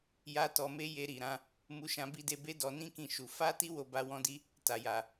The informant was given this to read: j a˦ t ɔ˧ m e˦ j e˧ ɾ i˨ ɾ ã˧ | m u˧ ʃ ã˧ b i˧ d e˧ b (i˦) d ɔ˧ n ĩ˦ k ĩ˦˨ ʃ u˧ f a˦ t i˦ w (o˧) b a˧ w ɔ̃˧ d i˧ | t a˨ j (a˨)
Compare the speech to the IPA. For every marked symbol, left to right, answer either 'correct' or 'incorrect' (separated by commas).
incorrect, correct, correct